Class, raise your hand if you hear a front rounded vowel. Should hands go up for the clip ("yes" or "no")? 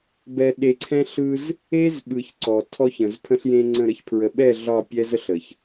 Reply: no